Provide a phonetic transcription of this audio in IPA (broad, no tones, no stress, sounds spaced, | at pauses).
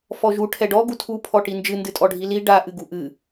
f ɔ ʒ u ʈʰ ɛ ɖ ɔ ɡ u tʰ u pʰ ɔ ʈ i n d͡ʒ ɨ n d ɨ tʼ ɔ ɖʱ i l i ɖ a ʔ ɨ ɡ u ʔ ɨ